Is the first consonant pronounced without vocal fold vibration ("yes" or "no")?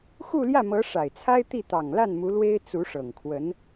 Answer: yes